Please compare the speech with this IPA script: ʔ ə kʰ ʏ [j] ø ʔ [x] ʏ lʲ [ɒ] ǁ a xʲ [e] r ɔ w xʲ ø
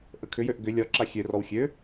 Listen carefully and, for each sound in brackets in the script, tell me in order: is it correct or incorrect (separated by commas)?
correct, incorrect, correct, incorrect